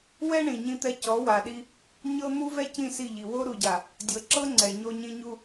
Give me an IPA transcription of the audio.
wɛ˦ ɳĩ˨ɲĩ˦t̪ɛ˦ cɔ˨˦wa˨ɗi˦ | ɲɤ˦ n̪u˦vɛ˦ cĩ˦˨si˦˨ʎi˨ wo˦ɾu˨ɟa˨ | dʲɤ˨ǁɤ˦ ŋ͡ǀɛ˨ɲo˦ɲĩ˦ ɲu˦

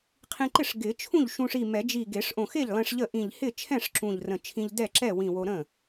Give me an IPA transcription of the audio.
qʰĩ˧ǃɪ˥˩ʂ ɡɪ˨˩˦t͡ʃʰũ˥˩ʎ ʃũ˧ʂi˧˩mɛ˨˩˦d͡ʒi˧˩ ɡe˨˩˦ʂʔõ˧˩xe˥˩ʎlˠẽ˧ʂ ʎə˥˩ʔĩ˧˩ʎ hɪ˥˩t͡ʃʰɛ̃˥˩ʂ ǁũ˧˩ʎrə̃˧˩t͡ʃʰĩ˧ʎ dɛ˥˩ ǁɛ˥˩wĩ˧˩wo˧ ɾə̃˥˩

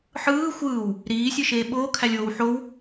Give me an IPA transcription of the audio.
ħɯː xʷɯːw | ɾiːsʲɯʃeː ɓoːkʰælʲoːw ħow

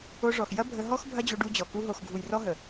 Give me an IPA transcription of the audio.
o˧ʐɔ˨x jɐ˦bʱə˧ɦɔ˦x bʱɐ˦d͡ʑo˧ɖu˧d͡ʑɔ˨ ku˧ɦo˨xɡʱu˨j rɔ˦ɦə˨

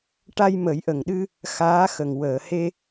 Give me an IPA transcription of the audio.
ʈa˧jmə˨˩˦jʔə˨˩ŋɗɨ˧ | xaː˧˥xə˨˩ŋ wəː˨˩˨he˧

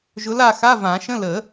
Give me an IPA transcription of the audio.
ʒʊ˧˥la˥˧ xa˧˥˧ vã˨˩˦ʃə̃˧˥˧ lə˨˩˦

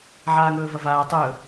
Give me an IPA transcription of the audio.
ʕaːŋɵːvɐvaː tˤɵː

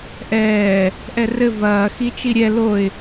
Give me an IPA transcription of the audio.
ʔɛː | ʔɛrɘ vɐː xit͡ʃiɾʲɛ loɪ̯

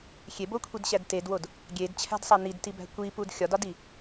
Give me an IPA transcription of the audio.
xʲebokʷʰidɕæd tedwod | ɡʲedt͡ɕʰæ̤dsˤæ nidtibæ̤ kʷipud xʲɒdɒdi

